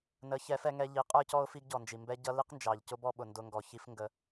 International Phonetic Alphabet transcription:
n ə˨˦ ç ɛ˨˦ f ɛ˧ ŋ ɛ˧ ʎ i˨˦ qʼ ə˞˦ c ɔ˦ ʊ̯ f i˦ ɡ ɟ ɔ˨ n d͡ʒ i˨ m b ɛ˦ ɟ ʌ˦ l i˦ q n d͡ʒ ɑ˨ ʎ c ʊ˦ b ɔ˦ ɓ ʊ˨ n d ʊ˧ ŋ ɡ ɔ˨ ç i˦ f ŋ ɡ ə˧

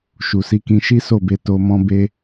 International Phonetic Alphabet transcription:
ʃ u˨ s i˨˦ k ĩ˧ ʃ i˦ s o˦˨ b e˧ t o˧ m ɔ̃˦ b e˦

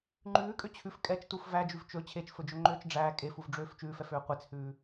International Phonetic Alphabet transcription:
ŋ͡ǃ ʉː kʼ ø t͡ɕʰ ʉ f kʼ ɛ t͡ʃ t u f v æ d͡ʒ ʉ v t͡ʃ ɵ t͡ɕʰ e t͡ʃ f ɵ d͡ʒ ɵ ŋ͡ǃ øː t͡ʃ ɖ͡ʐ æː kʼ e f u v ɖ͡ʐ øː f t͡ʃ ʉː f ɛ f øː qʷ e t͡s h ʉː

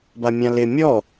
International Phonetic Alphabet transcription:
b a mʲ ã l ɪ mʲ ɔ

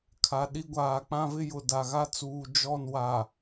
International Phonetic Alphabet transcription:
kʰ a˨ ɗ i˦ ɡʷ aː˨ k͡p ã˦ v ɪ˦ j ʊ˨ d a˨ ɣ a˦ t͡s uː˨ d͡ʒ ɔ˦˨ n w a˨

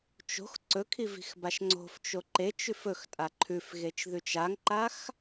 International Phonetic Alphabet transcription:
t͡ʃ o̤ x ǀ ɵ kʰ i v i̤ x b a ʃ ŋ͡ǀ o̤ f t͡ʃ o ǃ e t͡ʃ ʉ f ɵ x tʼ a ǃʰ ʉ f ɣ e t͡ʃ ð ʉ t͡ʃ a ŋ ǃ a x

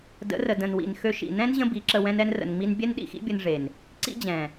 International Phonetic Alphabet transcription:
d ə̰˨˦ r ə˨ d ə̃˨ n w ḭ˨ n x ø˧ ʃ ḭ˨ n ɛ̃˦ n ʑ ə̃˦ b i˨˦ ǁ ə˧ w ɛ̃˧ n ɛ˧ n r ə̰˨ n ŋ͡m i˧ n bʲ ɛ˦ n ɗ ḭ˧ x ḭ˦ bʲ ə˧ n ʐ e˨ n | ǀ ḭ˦ d͡ʑ ɛ̃˨

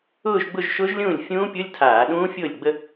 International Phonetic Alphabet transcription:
ʊː˥˧ ʒ ɡ͡b ʊ˥˧ ʒ ʃ ʊː˦˥ ʒ lʲ ũː˥˩ lʲ fʲ ũː˦˥ pʲ ʊ˧˥˧ lʲ tʰ aː˧˩˧ ɗ ũː˦˥ fʲ ʊː˥˩ lʲ ɡ͡b ə˥˧

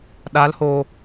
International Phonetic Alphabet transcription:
ɗ a˨˦ l h oː˨

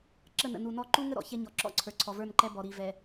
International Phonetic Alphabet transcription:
ǁ ə˦˨ n ə̰˨ n u˨ n ɔ˦˨ ǃ u˦ ŋ ə˦ ɾ ɔ̰˨ ç ɛ˦ ɲ ɔ˨ ǁ ɔ̰˦ ǀʰ ə˞˨ ǀʰ ɔ˨ v ə˞˦˨ n ǃ ɛ˦ b ɔ˨ ɾ i˨ v ɛ˨

